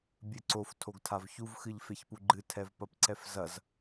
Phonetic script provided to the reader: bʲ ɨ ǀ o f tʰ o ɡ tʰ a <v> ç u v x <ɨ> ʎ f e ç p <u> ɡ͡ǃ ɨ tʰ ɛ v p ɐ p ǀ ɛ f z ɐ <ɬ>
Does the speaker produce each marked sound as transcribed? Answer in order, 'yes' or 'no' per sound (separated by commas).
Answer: yes, yes, yes, no